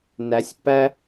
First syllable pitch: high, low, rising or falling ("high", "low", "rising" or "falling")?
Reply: rising